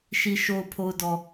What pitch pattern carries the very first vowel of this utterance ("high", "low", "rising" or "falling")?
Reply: low